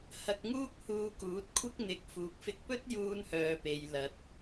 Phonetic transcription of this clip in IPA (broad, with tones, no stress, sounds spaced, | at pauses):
h ɐ˧ k̚ ŋ uː˥ k̚ h uː˧ k uː˨˥ t̚ kʷʰ ɪ˥ k̚ n̪ ɪ˧ k̚ f uː˨ k̚ f ɪ˧ k̚ p ɵ˥ t̚ j uː˧ n h œː˨ p e˨ j l ɐ˨ t̚